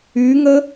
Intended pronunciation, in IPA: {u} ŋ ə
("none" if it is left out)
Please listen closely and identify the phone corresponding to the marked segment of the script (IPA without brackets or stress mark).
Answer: y